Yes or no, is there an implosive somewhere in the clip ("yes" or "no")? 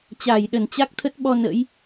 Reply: yes